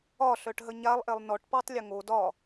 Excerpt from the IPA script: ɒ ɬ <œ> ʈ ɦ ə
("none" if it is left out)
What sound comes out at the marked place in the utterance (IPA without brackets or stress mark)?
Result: œ